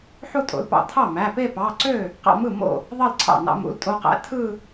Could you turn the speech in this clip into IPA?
ħ u˥˧ tʼ o̰˩˧˩ l p ɑ̰˥˩ tʰ ɑ˥˩ m æ˩˧˩ p e˥˧ p ɑ˩˧˩ ǀ ø˥˩ | q ɑ̰˥˧ m ɯ˥˩ m o̰˥˩ | ðˤ ɑ˥˧ l ǀʰ ɑ̰˥˩ n ɑ̰˧ m ṵ˩˧˩ l tʼ o˧ q æ̰˧ tʰ ɯ˥˧

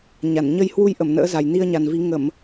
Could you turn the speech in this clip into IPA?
ɲ a˧˩ n ɲ ə˧ j h w u˧ j ʔ ə˧˩ m n ə̰ː˧˥ z a˨˩ j n i˧ ə̯ ɲ a˨˩ n v i˨˦ ŋ ə˧˩˨ m

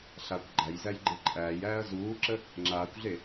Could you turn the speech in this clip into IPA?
ɬ a kʷ ɡ͡ǃ æ j z æ j ɡ͡ǃ e ǃʼ æː j æː ɐ̯ z uː ǁ ə | ŋ͡ǁ aː kʷ ɮ e

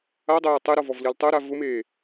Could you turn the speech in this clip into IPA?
a dˤ o j ʊ tˤ e ɾ ɔ v ɔ v l i l tˤ o ɾ a v ʊ m eː

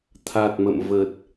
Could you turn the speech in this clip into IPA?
t̪ʰ a˨˩ t̚ m ə̰˧˨ m v ə˨˩ t̚

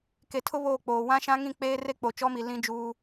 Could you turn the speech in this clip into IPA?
k e˨ tʰ ʊ˦ β oː˦˨ k͡p oː˨ w ã˦ ʃ ã˦ ŋ ĩ˦˨ k͡p eː˦ r e˦ k͡p o˨ t͡ʃ ɔ˦ m i˨ l ĩ˦ d͡ʒ uː˦

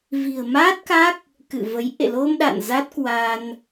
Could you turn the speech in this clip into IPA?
v i̤˨˩ ə̯ m a˦˥ t̚ k a˦˥ k̚ | k ɨ̰˧˨ v ə˨˦ j ʔ ḛ˧˨ l o˧ m ɗ a̰˧˨ n z a˦˥ t̚ k w a˧ n

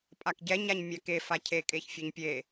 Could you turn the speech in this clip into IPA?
pʼ a k ɟ ɛ ɲ a ɲ mʲ æ k e f a cʰ e kʼ e ç fʲ ɛ ɲ pʲ e

